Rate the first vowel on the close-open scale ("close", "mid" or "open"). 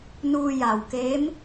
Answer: close